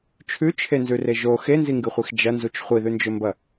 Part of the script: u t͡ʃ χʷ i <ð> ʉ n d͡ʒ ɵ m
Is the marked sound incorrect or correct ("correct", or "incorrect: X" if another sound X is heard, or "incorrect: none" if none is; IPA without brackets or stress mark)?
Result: correct